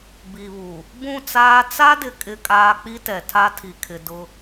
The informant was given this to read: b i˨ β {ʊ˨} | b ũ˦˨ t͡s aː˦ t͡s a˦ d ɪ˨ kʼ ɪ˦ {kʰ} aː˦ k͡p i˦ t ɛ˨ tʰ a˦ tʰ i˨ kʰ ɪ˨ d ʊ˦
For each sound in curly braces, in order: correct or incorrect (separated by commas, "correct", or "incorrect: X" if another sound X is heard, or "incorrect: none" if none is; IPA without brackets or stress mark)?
incorrect: u˨, incorrect: kʼ